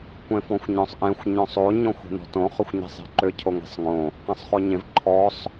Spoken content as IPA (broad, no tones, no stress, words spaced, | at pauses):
kʷẽfɔ̃xʷɲɔ̃sˤʔẽxʷ ɲɔ̃sˤo ɲɔ̃xʷe̤nɔ̤tõ χʏxʷɲe̤sˤe̤ǃʏ cʰoŋe̤sˤŋõ | qẽsˤχoɲẽv ǃʰɔsˤ